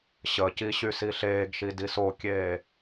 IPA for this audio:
ɕ ə c i ɕ y s i ɬ eː ɡ ʃ i d i s o kʲ eː

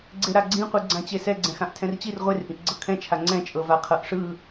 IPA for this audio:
ɡ͡ǀ e ɾ a ɡ͡ǀ ĩ qʷ ɯ ɡ͡ǀ ã t͡ɕ e s ɛ ɡ͡ǀ ɛ̃ x ã ʔ tʰ ɛ̃ r t͡ɕ i r ʁʷ e r ʔ ĩ ʔ ɡ͡ǀ ɤ kʰ ɛ̃ t͡ʃʰ a ŋ͡ǀ ɛ̃ t͡ʃʼ ɤ v a qʰ ɤ ʔ ʂ ɯ

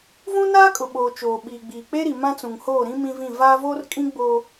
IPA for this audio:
v ũ˦ n aː˦ kʼ ʊ˨ ɓ oː˨ t͡ʃ oː˨ ɓ iː˨ ɡ͡b iː˨ k͡p e˦ ɾ i˨ m ã˦ t͡s ũ˨ ŋ h oː˦˨ ɾ ĩ˦ m ĩ˦ v ĩ˦˨ v aː˦ v oː˦ r kʼ ĩ˦ ɡ͡b oː˦

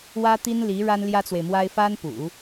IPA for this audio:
w ä˥ t̪ i˥ n l i˧˥ ɻ a˥ n l j ä˥ t͡s w e˨ ɪ̯ m w a˥ ɪ̯ f a˥ n p ṵ˨˩˦

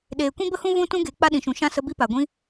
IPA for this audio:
ɗ eː˨ kʷ ĩ˦ b ə˦ h ũ˦ v ũ˦ t ũ˦ ɡ e˨˦ k͡p a˦ ɗ ĩ˨ ʃ ũ˨ ʃ ã˦ s ə˧ b i˦ p a˨ ɡʷ ĩ˦

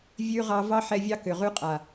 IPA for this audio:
vʲ ʉ˧ ʁ ɑ˧ v ɑ˦ ħ ɛ˧ vʲ ɑ˦ k ʏ˨ ʁ ʉ˧ qʼ a˨

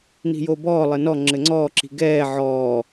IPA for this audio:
n i̤ j o b ɔː lˠ ɘ n ɔ ŋ͡ǁ ɘ ŋ͡ǀ ɔː ǁ i̤ ɡ ɛː ʕ ɔː

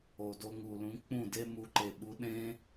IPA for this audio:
o˨ d o˧ ŋ u˨ l ũ˨˦ k͡p ũ˦˨ d e˦ m u˧ ǃ e˨ ɓ u˨˦ ɗ ẽ˦

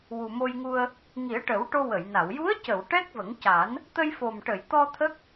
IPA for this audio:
w u˨˩ m o˧ j ŋ u˧ ə̯ | ŋ i˨˩˦ ə̯ ʈ ə˨˩˦ w ʈ o˧ w ə˨˩˨ j n a˨˩˨ w j u˧˥ ə̯ c ə˨˩˨ w ʈ ɛ˦˥ k̚ v ə˨˩˦ ŋ c a˨˩˦ n | t̪ ə˧ j f o˨˩ m ʈ ə˨˩˨ j t̪ ɔ˧ t̪ʰ ə˦˥ k̚

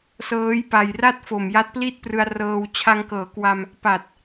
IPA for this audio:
s ɤː˦˥ j p a˨˩ j r a˥˩ t̚ f o˨˩ m j a˦˥ t̚ p l i˥˩ t̚ p r ɯ˧ a̯ r ɤː˧ w t͡ɕʰ a˧ ŋ k ɤː˩˦ k w a˧ m | p a˨˩ t̚

